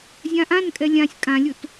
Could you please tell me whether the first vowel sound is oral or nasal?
nasal